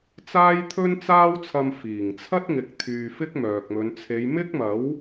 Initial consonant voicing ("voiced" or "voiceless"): voiceless